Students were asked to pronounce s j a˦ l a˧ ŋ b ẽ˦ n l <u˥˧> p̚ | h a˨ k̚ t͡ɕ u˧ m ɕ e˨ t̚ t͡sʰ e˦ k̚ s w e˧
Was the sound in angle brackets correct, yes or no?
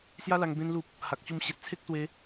no